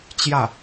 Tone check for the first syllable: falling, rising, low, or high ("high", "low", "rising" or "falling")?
falling